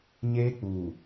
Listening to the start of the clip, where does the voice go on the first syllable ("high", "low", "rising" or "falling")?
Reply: high